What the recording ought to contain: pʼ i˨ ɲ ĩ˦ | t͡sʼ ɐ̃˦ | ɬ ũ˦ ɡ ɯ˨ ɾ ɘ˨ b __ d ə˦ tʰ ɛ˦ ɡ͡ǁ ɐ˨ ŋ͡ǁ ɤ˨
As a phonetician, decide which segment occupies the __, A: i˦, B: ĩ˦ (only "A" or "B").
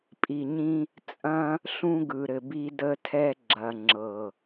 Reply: A